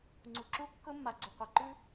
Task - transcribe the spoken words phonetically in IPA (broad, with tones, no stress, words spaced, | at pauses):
ŋ͡ǀu˨ǁu˦ kːɵ˦mːa˨ɡ͡ǀɵ˨qʷa˨ ǃʉ˦